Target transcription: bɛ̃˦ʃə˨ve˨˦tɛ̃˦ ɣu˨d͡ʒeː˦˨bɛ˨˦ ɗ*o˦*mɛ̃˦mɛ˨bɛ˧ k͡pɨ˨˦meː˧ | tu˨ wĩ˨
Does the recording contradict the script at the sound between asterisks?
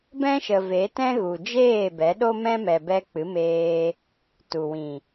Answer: no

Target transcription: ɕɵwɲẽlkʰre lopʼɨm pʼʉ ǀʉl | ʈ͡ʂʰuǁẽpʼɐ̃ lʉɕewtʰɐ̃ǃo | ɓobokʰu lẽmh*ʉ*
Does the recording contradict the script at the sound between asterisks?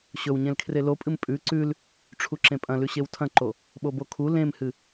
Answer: yes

